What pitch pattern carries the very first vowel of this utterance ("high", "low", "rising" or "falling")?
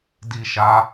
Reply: high